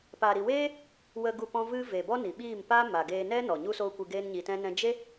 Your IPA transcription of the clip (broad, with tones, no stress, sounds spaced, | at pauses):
p a˨ ɾ i˨ w eː˦ | w ə˧ ɡ u˦˨ p ɔ̃˦ v ɨ˦ v e˨ b ɔ˦ n i˨ ɓ iː˦˨ m p a˦ m a˨ ɡ eː˧ n ɛ˦ n ɔ˨ ɲ u˦ s oː˦ kʷ ɨ˧ ɡ eː˦ n ɲ i˧ t ɛ̃˦ n ɛ̃˦ d͡ʒ e˦